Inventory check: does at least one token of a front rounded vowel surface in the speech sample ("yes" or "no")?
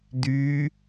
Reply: yes